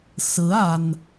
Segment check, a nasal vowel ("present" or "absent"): absent